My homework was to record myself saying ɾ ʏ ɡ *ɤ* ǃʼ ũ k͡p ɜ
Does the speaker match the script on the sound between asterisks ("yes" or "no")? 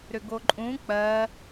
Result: no